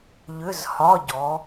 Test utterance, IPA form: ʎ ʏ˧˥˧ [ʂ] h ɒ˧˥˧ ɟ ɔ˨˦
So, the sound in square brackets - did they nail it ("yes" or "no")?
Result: no